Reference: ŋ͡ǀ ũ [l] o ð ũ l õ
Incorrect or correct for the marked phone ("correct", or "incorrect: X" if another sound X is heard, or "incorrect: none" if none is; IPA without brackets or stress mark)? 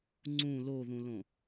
correct